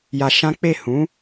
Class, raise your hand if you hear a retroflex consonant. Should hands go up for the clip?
no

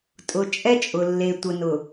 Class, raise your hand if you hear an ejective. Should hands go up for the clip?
yes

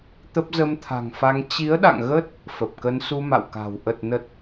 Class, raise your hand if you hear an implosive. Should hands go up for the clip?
yes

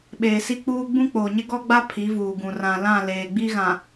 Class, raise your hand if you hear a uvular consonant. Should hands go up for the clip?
no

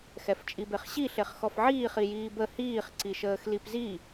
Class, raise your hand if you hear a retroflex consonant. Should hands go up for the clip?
no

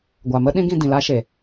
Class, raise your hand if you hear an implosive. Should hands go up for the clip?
yes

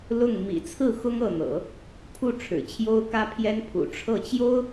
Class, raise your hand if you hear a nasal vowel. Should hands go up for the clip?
no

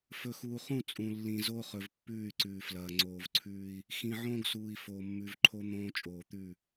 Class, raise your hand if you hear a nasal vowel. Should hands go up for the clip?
yes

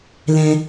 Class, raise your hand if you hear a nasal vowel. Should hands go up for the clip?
yes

